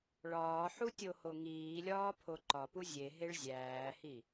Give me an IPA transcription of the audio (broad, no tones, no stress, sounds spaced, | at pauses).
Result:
ɭ ɒː ħ u tʲ o h o ŋ iː lʲ ɒː pʰ o ǃ ɒ p u zʲ e ɦ e ɭ zʲ æː h i